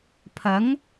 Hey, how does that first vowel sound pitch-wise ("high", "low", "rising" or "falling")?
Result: rising